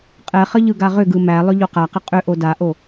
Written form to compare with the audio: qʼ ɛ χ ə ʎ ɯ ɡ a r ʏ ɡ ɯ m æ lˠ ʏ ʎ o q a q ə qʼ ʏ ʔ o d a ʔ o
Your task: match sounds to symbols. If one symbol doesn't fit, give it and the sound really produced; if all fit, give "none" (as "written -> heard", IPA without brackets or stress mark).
r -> ʁ